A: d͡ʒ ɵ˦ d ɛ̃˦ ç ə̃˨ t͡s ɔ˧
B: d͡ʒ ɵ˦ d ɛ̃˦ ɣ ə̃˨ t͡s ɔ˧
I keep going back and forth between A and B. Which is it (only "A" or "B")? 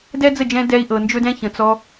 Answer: A